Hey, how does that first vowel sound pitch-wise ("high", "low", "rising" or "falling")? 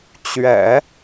low